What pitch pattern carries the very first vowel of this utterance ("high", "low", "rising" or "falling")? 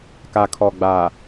low